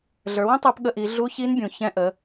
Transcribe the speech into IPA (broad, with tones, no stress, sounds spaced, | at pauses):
ɮ ə˞˩˧ w ə̃˥ tˤ ə˞˧ p ɠ ə˧ ʔ i˩˧ ɮ u˧˥ ç i˧˥ n bʲ ũ˩ ç ɛ̃˧ ʔ ə˩˧